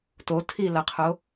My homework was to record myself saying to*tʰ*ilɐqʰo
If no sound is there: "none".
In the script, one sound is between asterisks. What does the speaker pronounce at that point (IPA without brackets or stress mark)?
tʰ